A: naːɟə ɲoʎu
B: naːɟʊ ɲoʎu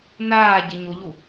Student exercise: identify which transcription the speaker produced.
A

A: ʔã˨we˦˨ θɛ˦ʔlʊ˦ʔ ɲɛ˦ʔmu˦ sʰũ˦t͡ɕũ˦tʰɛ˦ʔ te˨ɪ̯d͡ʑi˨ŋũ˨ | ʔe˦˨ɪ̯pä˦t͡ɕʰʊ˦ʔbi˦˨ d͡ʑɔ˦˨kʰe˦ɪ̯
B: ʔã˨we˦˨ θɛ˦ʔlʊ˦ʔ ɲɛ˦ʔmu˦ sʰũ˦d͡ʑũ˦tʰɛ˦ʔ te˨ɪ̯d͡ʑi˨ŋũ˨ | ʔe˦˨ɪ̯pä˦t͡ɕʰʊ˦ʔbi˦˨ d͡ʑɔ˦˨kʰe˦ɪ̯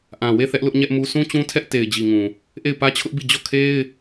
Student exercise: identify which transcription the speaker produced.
A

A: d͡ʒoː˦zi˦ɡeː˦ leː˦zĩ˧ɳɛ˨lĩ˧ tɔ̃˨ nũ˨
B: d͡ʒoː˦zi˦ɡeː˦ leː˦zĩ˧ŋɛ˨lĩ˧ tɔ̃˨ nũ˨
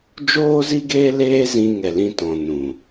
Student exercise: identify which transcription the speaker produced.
B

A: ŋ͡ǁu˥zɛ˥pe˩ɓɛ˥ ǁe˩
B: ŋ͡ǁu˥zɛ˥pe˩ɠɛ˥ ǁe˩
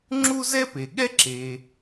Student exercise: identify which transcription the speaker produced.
B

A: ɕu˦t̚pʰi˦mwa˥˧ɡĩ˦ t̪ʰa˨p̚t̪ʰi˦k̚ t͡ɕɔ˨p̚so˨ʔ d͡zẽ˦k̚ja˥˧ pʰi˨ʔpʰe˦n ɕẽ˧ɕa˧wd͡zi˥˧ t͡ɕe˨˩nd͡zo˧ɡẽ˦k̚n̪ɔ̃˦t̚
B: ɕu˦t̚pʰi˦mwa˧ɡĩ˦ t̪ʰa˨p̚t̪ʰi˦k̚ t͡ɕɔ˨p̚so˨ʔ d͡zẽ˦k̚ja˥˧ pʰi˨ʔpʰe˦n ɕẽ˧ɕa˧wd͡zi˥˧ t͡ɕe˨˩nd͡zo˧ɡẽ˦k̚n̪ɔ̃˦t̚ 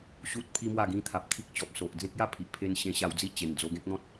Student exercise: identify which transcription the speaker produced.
A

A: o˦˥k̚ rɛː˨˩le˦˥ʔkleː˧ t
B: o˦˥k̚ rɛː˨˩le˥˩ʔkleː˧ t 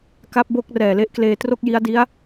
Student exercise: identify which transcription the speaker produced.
A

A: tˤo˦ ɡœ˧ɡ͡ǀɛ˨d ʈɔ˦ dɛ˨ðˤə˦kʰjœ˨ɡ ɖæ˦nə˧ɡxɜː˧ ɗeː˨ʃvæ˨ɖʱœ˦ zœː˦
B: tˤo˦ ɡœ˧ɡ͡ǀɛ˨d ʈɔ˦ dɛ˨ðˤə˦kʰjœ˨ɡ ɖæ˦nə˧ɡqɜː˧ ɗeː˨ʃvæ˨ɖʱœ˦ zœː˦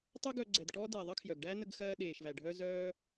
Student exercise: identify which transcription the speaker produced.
A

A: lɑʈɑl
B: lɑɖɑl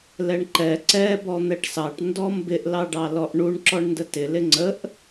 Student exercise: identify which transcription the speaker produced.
B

